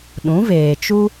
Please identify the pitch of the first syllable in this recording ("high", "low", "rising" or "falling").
rising